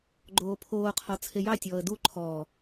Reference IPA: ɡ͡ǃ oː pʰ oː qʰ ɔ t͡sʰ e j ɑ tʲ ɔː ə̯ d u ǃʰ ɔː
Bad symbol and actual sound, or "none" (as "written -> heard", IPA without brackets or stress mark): none